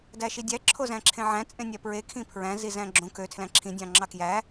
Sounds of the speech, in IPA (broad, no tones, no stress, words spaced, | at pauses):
dæʃidʲæ ǁʰozæ̃ǁʰẽʕæ̃ t͡sʼẽnʲæpɹe kʰĩpʰɹæ̃ zizæ̃ɡ͡ǁõ kø tʰlæ̃ǁʰĩ dʲɑ̃ŋ͡ǁɑkjæ